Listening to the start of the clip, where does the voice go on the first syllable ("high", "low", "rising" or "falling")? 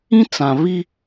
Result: high